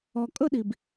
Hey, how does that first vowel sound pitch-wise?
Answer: low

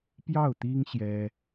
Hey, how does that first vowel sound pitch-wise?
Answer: falling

